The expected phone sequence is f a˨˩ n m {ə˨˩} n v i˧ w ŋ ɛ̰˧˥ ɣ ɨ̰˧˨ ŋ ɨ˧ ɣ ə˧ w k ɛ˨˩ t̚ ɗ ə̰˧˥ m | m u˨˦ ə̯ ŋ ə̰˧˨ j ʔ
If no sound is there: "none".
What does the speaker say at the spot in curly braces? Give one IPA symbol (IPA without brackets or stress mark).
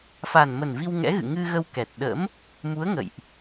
ə˨˩